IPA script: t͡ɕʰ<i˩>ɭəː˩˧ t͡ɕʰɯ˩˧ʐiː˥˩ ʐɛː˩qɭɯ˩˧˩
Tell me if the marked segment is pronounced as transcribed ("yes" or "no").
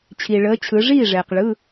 yes